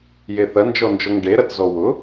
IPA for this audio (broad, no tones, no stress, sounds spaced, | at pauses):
j e θ ɐ n d͡ʒ ɔ n d͡ʒ ɔ ŋ ɖ e ɾ ɐ t z ɔ w ʊ